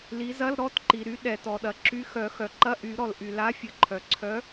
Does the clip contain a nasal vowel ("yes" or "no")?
no